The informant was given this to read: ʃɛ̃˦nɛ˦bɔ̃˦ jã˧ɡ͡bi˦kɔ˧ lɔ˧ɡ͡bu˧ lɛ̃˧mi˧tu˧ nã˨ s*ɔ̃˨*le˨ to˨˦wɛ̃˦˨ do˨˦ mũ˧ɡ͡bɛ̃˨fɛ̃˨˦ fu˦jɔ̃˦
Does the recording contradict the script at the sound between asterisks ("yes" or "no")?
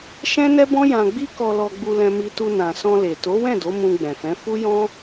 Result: yes